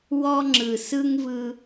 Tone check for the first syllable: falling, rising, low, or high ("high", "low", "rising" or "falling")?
high